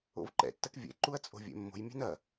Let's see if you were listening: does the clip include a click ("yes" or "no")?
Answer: yes